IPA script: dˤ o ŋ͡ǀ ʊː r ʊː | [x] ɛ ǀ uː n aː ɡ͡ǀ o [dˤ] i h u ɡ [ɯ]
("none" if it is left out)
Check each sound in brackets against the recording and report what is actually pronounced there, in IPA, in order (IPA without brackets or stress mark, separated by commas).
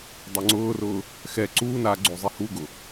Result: x, zˤ, ʊ